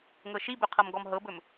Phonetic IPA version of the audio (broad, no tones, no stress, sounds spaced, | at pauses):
ŋ ɤ ʃ i b ɵ qʰ ɤ m ɡ ɔ m ɦ ɤ b ɵ m